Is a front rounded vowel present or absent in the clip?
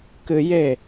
absent